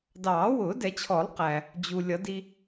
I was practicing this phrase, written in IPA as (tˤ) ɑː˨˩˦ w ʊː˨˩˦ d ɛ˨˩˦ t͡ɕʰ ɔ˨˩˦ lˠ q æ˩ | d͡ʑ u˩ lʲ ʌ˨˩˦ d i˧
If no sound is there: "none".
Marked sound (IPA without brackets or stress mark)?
d